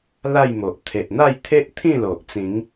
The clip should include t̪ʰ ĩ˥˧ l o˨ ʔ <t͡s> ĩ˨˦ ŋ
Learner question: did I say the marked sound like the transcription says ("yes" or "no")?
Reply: yes